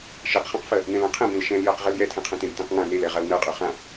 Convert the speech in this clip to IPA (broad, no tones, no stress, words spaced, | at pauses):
ʃeqχãqfɜ | nɛ̃lãqʰɛ̃bẽl ʃɛ̃ljɜq ʁɛljɛtʰɛ̃qʰɛ̃ tẽbtɛ̃qŋã nelɛ ʁalnɜqʼø χã